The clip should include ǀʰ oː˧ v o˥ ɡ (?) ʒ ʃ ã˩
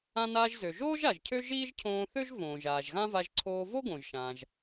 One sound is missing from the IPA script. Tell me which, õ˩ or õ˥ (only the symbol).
õ˩